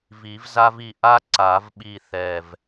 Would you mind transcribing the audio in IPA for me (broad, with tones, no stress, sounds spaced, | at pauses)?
v i˨˩˦ v z a˥ v i˥˧ ʔ a˥ ǀ a˨˩˦ v ɓ i˥˧ θ ɛ˧˩ v